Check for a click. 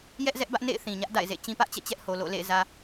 absent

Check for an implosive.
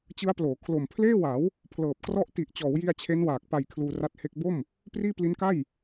absent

